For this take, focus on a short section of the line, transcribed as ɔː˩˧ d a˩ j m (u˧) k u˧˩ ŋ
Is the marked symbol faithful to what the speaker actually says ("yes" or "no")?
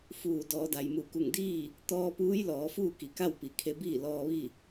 no